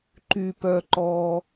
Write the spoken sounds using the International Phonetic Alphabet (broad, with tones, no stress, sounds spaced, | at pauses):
ǃ y˩ p œ˩ ǃ ɔ˩